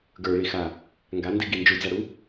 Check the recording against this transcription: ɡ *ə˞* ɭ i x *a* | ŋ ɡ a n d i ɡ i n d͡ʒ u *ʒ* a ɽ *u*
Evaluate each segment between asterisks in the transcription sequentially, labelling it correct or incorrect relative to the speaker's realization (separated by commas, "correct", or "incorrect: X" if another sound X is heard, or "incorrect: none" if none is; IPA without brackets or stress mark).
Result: correct, correct, incorrect: d͡z, correct